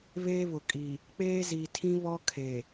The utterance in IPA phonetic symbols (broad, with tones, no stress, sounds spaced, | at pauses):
β eː˦ β ʊ˨ kʼ i˨ | k͡p eː˦ z i˨ tʰ ĩ˦ β ɔ˦ kʰ e˨